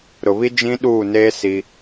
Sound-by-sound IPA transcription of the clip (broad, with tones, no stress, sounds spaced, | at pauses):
ɾ ʊ˨ β i˦ d͡ʒ ĩ˦ ɗ uː˦˨ n eː˦ s i˦